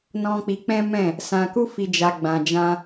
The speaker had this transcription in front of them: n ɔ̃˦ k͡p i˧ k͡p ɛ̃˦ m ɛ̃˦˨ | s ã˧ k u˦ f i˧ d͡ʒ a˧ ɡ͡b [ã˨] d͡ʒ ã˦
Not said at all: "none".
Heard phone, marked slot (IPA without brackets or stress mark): ã˧